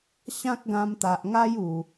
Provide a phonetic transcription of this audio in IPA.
ɕã˦k̚ɡã˧mt̪a˨ʔŋa˦j u˨˩

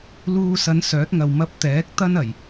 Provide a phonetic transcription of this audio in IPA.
luː˧sɐ˨˧n sœː˨˥t̚ŋɐ˨w mɐ˧p̚t̪ɛː˨˥k̚ t̪ɐ˥nɐ˨˩j

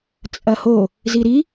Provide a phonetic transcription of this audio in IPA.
t͡sʼɐho | ziɾi

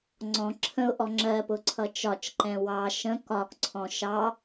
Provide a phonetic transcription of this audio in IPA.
ŋ͡ǀɔ̃ ǁʰə̃ʊ̯ʔɔ ŋ͡ǁɜpʊ ǀʰʌt͡ʃɒt͡ʃǃɛ̃ wɑ ʃə̃ kɒkǀʰɔ̃ ʃɑ

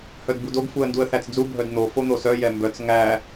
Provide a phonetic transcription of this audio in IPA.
hœdbudoɡ fuə̯nduə̯θæt͡sd͡zu bʱœdn̪o fon̪osœ jɛmbœt͡s ŋæ

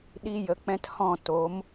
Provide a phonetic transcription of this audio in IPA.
ɗi˦ jə˧k͡pɛ̃˦thɔ̃˦˨ to˨˦m

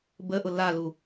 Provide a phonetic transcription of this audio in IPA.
bəʔʊ lalu

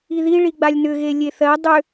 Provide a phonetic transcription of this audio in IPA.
iði ɭiɡ͡balʲnʏ ɣelʲeθɜ dˤʏ

